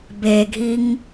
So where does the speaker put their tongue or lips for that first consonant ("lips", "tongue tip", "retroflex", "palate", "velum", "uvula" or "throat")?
lips